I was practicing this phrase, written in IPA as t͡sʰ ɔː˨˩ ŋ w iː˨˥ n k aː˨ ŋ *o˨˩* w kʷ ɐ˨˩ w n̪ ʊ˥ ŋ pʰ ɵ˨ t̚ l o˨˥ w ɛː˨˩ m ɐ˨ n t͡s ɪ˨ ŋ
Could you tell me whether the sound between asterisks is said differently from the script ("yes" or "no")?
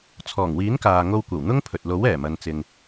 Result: yes